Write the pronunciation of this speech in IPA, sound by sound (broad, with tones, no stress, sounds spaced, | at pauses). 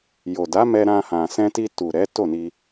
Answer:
j o˨ d a˨˦ m ɛ˧ ɾ ã˧ h ã˨ s ɛ̃˧ t i˧ t u˨ ɾ ɛ˨˦ t o˦˨ n i˧